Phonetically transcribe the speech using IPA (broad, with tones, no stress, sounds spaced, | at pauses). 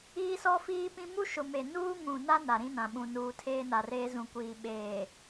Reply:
iː˦ s ɔ˦ f iː˦ p ĩ˦ m u˦ ʃ ʊ˨ m e˨ n uː˦ ŋ ũ˨ n a˦ n a˨ ɾ ĩ˦ n ã˨ ɓ ũ˨ n uː˨ tʰ eː˦ n a˨ r eː˦ z ũ˨ kʷ iː˨ ɓ eː˨